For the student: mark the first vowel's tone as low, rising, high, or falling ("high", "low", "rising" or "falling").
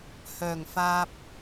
low